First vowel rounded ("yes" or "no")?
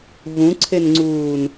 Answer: yes